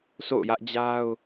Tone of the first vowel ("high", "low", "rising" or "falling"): falling